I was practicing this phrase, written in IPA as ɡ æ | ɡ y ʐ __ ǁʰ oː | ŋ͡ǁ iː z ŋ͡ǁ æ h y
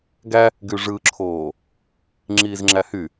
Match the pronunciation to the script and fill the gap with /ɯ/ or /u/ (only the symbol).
ɯ